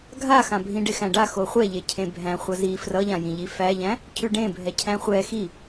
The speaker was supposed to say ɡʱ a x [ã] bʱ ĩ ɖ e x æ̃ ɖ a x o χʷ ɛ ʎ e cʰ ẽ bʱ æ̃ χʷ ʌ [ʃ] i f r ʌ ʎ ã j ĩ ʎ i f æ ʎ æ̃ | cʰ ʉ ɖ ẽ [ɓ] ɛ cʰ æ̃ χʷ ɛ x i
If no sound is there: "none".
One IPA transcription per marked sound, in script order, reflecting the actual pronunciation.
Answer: ã, z, bʱ

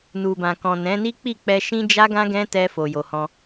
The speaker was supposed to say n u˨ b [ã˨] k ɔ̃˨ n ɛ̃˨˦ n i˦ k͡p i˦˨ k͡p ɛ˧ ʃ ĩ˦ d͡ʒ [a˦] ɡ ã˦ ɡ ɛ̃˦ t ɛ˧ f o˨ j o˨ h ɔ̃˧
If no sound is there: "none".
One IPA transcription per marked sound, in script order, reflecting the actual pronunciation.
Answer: ã˨, a˦

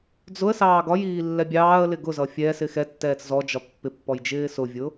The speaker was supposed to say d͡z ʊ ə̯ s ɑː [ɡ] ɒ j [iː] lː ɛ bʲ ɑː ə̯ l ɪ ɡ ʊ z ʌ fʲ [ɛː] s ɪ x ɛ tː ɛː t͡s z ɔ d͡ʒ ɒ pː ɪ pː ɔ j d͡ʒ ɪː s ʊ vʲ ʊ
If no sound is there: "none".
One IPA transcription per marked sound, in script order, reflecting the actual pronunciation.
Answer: ɡ, iː, ɛː

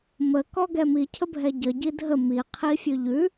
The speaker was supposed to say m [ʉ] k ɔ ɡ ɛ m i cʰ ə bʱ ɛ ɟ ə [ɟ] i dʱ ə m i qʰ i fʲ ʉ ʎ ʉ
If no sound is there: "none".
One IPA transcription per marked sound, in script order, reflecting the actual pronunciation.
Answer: ə, ɟ

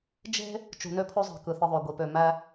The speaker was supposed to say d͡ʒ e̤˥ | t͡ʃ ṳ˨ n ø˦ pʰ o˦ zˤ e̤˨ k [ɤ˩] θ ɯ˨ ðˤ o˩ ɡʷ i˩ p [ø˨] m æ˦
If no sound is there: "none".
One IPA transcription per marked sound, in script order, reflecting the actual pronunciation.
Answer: ɯ˩, ø˨

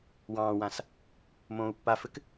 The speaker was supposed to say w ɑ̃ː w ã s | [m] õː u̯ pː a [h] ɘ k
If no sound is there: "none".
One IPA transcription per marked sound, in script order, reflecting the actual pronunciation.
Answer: m, f

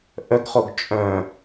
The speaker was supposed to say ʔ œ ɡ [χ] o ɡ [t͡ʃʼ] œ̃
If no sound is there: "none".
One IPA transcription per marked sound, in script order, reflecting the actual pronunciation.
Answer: χ, t͡ʃʼ

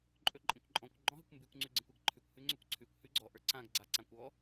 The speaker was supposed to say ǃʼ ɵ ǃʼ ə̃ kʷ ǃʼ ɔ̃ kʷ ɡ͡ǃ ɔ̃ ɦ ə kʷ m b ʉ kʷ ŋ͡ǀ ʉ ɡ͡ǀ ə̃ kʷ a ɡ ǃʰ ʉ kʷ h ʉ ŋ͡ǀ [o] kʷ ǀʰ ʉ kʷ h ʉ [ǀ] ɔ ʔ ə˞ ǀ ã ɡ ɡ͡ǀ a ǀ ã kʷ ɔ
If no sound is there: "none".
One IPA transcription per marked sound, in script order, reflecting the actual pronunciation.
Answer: ɵ, ɡ͡ǀ

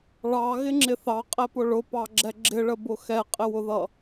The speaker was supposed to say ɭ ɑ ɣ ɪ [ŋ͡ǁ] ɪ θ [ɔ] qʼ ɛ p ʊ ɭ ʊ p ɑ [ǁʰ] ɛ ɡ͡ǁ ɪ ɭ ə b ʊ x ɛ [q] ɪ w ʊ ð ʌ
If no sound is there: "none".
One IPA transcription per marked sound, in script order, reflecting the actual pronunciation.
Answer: ŋ͡ǁ, ɑ, ɡ͡ǁ, qʼ

